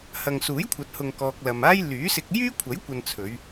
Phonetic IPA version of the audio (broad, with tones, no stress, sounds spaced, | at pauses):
h ɐ˨ ŋ s uː˨˥ j kʷʰ ɐ˨ t̚ h ʊ˨ ŋ k ɔː˨ k̚ l ɐ˨ m aː˥ j l yː˨˥ s ɪ˧ k̚ j yː˥ kʷʰ ɐ˨˥ j kʷ ɐ˨ n t͡sʰ ɵ˨˧ ɥ